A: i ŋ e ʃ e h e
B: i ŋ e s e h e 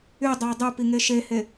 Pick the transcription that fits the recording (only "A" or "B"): A